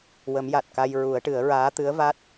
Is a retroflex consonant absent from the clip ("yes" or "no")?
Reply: no